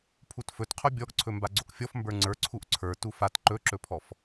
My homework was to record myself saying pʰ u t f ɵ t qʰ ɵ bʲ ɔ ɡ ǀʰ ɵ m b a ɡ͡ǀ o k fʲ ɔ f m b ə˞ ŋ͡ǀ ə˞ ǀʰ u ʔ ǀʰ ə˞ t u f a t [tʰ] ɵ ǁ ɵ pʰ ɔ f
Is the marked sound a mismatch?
yes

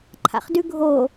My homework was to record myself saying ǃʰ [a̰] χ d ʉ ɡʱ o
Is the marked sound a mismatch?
no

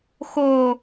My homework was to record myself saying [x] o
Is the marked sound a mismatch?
no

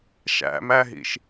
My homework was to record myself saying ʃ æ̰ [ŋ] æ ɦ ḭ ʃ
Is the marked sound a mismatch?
yes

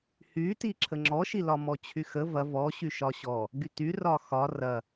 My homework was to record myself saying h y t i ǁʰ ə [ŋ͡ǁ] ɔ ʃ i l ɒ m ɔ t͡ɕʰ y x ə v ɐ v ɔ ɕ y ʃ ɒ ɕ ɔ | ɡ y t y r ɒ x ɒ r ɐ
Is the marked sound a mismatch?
no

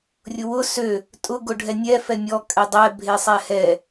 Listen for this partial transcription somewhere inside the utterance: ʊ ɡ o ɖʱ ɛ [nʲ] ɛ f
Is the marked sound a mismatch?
no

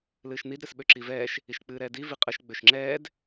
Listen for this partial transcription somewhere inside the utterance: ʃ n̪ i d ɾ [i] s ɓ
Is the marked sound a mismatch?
yes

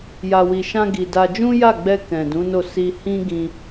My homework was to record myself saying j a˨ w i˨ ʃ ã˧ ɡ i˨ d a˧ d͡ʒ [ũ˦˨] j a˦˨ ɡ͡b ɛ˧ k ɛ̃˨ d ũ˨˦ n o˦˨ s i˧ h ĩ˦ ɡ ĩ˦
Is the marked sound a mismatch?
yes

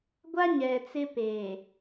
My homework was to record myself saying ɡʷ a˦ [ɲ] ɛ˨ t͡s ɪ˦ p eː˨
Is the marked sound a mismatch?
no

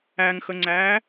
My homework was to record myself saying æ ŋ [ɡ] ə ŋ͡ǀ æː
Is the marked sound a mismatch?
yes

